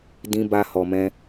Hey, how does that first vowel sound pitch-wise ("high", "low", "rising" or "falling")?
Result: high